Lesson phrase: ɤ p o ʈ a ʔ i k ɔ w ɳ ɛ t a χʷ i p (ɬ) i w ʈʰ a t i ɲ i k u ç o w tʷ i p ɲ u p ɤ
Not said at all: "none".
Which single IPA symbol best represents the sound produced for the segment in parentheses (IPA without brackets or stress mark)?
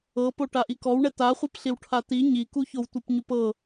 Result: ɬ